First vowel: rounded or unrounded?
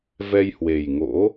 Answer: unrounded